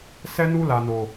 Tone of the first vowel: high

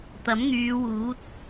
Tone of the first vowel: rising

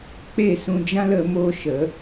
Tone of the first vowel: falling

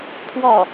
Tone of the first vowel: falling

